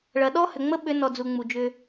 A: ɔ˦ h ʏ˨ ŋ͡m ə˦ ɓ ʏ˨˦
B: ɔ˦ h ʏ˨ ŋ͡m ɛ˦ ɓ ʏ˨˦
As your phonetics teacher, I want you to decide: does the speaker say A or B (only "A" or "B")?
A